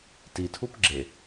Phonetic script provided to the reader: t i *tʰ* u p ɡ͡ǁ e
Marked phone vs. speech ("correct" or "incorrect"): correct